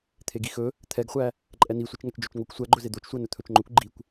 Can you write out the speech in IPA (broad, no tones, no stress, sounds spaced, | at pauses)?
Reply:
t̪ʰ e ɡ i x ɵ | t̪ʰ ɛ ɡ χʷ æ | ǃʼ ɛ n i sʷ e t͡ʃ ŋ æ t͡ʃ d͡ʒ ɵ t͡ʃ ŋ o kʷ sʷ æ ɡ͡ǃ ɵ z e d̪ o t͡ʃ sʷ æ n ɵ t̪ʰ ɵ t͡ʃ ŋ͡ǃ ɵ kʷ ɡ͡ǃ i kʷ